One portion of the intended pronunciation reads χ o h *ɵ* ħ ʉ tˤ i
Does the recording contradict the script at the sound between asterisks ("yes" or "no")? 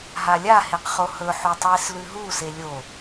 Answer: no